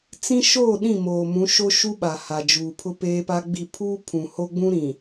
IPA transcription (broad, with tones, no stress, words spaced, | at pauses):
t͡sĩ˦ʃoː˦˨ɗĩ˦˨moː˨ mũ˨˦ʃo˦ʃu˦ ɓa˨ha˨d͡ʒuː˨ pʰʊ˦peː˦pa˦ɡ͡bi˦˨ pʰu˦ pʰũ˨ho˦ɡ͡bũ˦ɾĩ˨